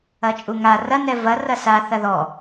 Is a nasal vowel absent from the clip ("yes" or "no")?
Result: yes